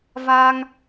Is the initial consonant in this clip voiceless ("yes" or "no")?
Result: no